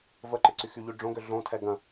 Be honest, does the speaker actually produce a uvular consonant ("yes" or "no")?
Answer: no